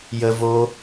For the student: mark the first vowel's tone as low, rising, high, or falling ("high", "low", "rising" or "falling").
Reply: high